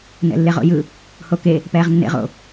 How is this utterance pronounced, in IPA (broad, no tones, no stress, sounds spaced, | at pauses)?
n ɛ̰ lː e ʁ o̰ j ɯ | h o k e | p ɛː ʁ nː ḛ ʁ o̰